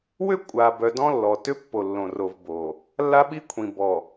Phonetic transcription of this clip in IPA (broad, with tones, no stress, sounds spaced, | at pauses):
w ʏ˦ kʷʼ a˨ b œ˨ d ɔ̃˦ lː ɔ˨ t ʏ˦ pː o˨ lː õ˨ r o˨ v b o˨ | lː a˦ ɓ i˦ kʷʰ ĩ˨ b ɔ˨